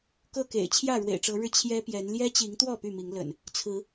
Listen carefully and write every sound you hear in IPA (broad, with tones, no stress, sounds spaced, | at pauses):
k ɤ˥˨ k ḛ˨˩ ɪ̯ t͡ɕʰ j ä˥˨ ɻ w ḛ˨˩ ɪ̯ ʈ͡ʂ ɤ˨˦ ɻ ɻ̩˧ t͡ɕʰ j ɛ˦ p j ɛ˨˦ n l j ɛ˦ t͡ɕ i˨˦ ŋ t̪ w ɔ˥˨ p y˥˨ m i˨˦ ŋ l ə̰˨˩ n | t͡sʰ ɹ̩˨˦